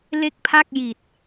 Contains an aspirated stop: yes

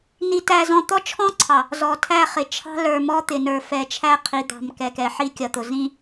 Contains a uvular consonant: yes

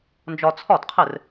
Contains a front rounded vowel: no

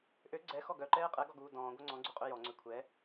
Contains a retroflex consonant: no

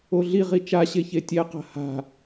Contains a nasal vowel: no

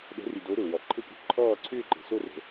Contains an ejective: yes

